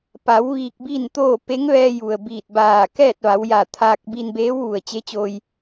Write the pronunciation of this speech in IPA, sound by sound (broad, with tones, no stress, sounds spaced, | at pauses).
p a˩˧ w ʋ iː˧ k̚ b i˥˨ n t̪ oː˥˨ p e˧˥ ŋ ʋ ɛː˧ j u˩ ə̯ b iː˧˩ t̚ b aː˧˩ k ɛː˥˨ t̚ ʋ a˩˧ w j a˧˩ t̪ʰ aː˧ k̚ b i˧ n b eː˧˥ w ʋ u˩ ə̯ t͡ɕ e˧˥ t͡ɕ oː˧ j